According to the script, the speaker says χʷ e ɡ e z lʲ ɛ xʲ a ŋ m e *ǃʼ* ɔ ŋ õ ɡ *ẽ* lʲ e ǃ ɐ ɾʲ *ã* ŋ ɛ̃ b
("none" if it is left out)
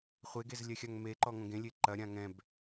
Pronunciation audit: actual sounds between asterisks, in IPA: ǃ, ẽ, ã

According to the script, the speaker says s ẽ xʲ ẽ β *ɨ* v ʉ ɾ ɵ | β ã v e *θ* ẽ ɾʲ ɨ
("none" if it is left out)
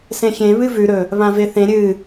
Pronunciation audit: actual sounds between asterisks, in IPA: ɨ, θ

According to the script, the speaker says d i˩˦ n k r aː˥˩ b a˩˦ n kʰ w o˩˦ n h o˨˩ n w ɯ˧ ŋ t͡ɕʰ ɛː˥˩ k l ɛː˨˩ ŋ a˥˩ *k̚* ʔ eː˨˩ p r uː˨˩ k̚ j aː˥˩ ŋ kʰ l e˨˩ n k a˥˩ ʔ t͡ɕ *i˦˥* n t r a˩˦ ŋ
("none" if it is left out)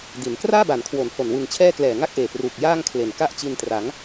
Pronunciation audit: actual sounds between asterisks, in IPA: k̚, i˧

